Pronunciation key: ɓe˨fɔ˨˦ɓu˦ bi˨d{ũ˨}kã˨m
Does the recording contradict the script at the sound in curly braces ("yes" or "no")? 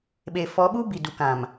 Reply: yes